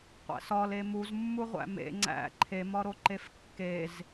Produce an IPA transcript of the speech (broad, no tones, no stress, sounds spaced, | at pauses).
qʷ æ̰ s ɒ l e m u z mː u ʁʷ æ̰ m ḛ ŋ͡ǀ æ̰ ǃʰ e m ɒ ɾ o ǃ e f kː e z